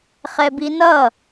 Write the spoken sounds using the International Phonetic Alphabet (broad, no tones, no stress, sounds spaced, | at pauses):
χ ɛ b i n ʌ